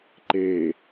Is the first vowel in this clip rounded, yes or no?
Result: no